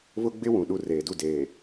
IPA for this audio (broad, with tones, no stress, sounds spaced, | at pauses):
β ʊ˦ ɡ͡b ɪ˦ w ũ˨ ɗ u˦˨ r eː˨ d u˦˨ d eː˨